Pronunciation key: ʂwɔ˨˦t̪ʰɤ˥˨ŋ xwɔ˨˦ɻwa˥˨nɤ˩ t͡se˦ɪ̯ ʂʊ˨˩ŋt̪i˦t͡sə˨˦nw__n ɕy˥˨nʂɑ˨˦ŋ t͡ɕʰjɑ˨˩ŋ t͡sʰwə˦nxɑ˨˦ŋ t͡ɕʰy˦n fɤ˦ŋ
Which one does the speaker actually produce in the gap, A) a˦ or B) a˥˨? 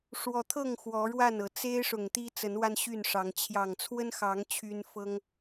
A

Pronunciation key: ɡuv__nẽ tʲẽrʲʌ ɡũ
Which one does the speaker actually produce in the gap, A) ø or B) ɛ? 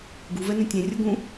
B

